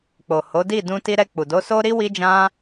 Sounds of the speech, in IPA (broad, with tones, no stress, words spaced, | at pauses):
k͡po˨ho˨˦di˦˨ dũ˧ti˧ɾɛ˧k͡pu˨ do˨˦so˦ɾi˦ wi˦d͡ʒã˦